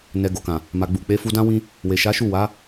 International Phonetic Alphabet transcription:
n ɛ˨ ɡ o˨ k ã˨ | m a˨ ɡ͡b u˨ k͡p e˨˦ f u˧ d ã˦ w ĩ˦ | w e˨ ʃ a˨˦ ʃ u˦˨ w a˨˦

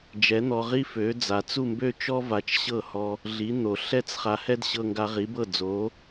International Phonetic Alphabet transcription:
d͡ʒ ɛ˩˥ n̪ ɔ˧ ʁ i˥ f ø˩˥ d͡z a˩ t͡s u˥˩ m b ø˥ t͡ʃ ɔ˥ v a˧ t͡ʃ ɕ ɤ˥˩ h ɔ˧ | ɮ i˩˥ n̪ o˩ ɬ ɛ˥ t͡s χ a˧ h ɛ˥ d ɕ ɤ˧ ŋ ɡ a˧ ʁ i˩˥ b ɤ˥˩ d͡z o˩˥

